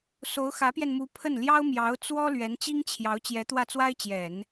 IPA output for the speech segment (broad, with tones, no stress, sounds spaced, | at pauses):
s o˧˥ ʊ̯ x ä˧˥ p j ɛ˧ n m u˧˥ pʰ ə˥˩ n l j ɑ˥ ʊ̯ m j ɑ˧˥ ʊ̯ t͡s w ɔ˥ l ɥ ɛ˧˥ n t͡ɕ i˥ ŋ t͡ɕʰ j ɑ˧˥ ʊ̯ t͡ɕ j ɛ˧˥ t̪ w ä˥˩ t͡s w a˥ ɪ̯ t͡ɕ j ɛ˨˩˦ n